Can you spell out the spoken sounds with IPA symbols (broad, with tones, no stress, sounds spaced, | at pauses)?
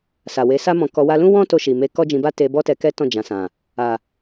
s a˨ w e˨˦ s a˦ m ɔ̃˧ k ɔ˧ w a˦ l ũ˦ w ɔ̃˦ t o˧ ʃ i˨ m e˧ k ɔ˦ d͡ʒ ĩ˧ b a˦ t e˧ b ɔ˦ t ɛ˧ k ɛ˦ t ɔ̃˦˨ d͡ʒ ã˨ s ã˨ | a˨